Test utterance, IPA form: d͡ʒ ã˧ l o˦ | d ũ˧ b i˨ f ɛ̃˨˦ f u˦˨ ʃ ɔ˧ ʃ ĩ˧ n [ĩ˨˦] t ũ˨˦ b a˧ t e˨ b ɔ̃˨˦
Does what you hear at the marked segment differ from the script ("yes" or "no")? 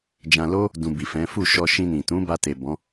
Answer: yes